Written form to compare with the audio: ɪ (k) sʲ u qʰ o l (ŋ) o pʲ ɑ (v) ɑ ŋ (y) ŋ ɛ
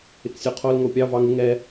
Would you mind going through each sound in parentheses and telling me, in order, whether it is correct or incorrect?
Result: correct, correct, correct, incorrect

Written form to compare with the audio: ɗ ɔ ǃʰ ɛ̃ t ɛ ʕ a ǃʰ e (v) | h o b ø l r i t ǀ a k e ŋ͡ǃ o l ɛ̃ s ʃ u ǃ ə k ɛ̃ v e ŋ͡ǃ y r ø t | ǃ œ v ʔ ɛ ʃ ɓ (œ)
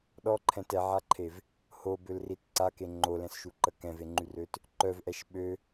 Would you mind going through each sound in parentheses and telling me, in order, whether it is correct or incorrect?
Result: correct, incorrect

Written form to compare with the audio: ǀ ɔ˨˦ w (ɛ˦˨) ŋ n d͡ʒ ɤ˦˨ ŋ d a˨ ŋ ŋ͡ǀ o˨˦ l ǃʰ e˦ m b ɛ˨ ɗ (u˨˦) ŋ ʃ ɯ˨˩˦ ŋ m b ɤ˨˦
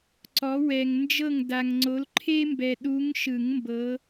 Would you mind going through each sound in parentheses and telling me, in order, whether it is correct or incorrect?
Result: incorrect, correct

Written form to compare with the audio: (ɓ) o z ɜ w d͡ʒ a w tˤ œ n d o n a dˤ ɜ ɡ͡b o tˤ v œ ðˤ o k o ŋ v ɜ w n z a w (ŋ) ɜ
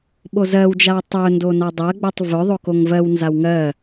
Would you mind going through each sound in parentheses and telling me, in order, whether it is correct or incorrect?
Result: correct, correct

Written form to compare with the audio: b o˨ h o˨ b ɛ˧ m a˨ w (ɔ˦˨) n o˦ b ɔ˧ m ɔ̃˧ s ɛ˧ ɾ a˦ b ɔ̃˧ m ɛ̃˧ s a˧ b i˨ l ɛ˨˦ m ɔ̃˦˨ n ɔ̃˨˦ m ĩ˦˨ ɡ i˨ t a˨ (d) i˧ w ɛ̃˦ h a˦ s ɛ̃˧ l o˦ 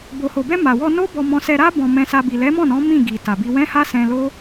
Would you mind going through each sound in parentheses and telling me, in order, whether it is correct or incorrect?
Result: incorrect, incorrect

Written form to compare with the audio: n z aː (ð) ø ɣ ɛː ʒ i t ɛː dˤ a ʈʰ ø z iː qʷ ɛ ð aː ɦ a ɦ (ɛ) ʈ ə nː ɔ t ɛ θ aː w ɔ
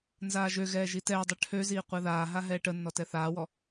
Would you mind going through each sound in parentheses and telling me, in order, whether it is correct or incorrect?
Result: incorrect, incorrect

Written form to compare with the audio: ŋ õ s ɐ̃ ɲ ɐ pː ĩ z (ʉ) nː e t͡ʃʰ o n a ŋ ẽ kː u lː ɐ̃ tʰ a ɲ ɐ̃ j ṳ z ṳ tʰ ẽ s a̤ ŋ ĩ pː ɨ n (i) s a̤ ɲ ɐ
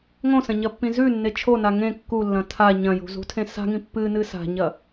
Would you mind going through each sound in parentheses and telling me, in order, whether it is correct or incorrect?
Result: correct, incorrect

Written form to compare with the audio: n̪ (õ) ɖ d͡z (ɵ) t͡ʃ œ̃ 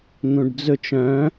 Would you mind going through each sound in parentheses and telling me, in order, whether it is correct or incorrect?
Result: incorrect, correct

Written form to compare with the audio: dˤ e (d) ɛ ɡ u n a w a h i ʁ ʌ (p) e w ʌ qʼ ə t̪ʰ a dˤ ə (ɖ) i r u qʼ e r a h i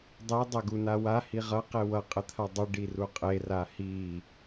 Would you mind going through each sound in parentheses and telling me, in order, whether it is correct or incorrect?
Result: incorrect, incorrect, correct

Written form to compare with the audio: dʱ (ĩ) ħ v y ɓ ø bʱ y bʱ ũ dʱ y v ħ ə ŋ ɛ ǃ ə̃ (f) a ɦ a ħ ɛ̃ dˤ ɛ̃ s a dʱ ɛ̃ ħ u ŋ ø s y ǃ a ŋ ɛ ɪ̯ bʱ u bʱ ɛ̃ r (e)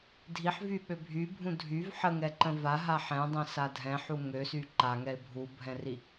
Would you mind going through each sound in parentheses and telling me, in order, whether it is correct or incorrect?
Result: incorrect, incorrect, incorrect

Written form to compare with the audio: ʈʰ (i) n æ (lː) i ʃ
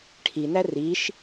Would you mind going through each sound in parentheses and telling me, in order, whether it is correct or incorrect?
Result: correct, incorrect

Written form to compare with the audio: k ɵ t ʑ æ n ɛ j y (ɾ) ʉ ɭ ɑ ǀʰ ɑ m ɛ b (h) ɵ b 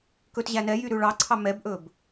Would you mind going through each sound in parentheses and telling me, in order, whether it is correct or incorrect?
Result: correct, incorrect

